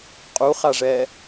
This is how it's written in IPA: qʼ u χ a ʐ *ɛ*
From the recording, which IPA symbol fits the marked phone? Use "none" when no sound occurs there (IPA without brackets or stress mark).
ɛ